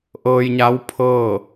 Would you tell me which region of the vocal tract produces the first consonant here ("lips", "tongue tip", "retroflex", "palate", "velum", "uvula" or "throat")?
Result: throat